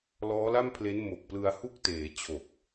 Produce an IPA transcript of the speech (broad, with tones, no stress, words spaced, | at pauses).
lɔː˦˥la˥˩mpʰle˦˥n mo˨˩k̚plɯ˧a̯hu˥˩k̚ teː˩˦ t͡ɕʰo˨˩k̚